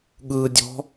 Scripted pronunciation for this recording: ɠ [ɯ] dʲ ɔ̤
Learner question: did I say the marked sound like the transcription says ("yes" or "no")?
yes